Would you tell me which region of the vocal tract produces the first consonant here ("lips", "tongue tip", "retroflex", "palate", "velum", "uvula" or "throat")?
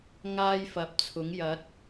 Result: velum